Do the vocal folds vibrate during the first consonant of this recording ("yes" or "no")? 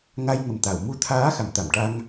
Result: yes